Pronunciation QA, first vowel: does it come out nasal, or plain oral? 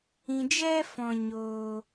nasal